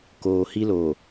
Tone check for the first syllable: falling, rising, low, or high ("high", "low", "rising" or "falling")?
low